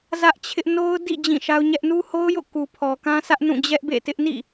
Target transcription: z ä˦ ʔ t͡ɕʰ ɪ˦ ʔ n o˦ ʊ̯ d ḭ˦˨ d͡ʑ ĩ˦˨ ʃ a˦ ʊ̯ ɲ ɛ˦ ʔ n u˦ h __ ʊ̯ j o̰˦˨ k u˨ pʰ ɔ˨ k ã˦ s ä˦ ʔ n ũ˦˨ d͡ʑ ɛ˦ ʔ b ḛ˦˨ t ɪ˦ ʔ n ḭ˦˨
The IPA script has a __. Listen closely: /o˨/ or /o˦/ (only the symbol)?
o˦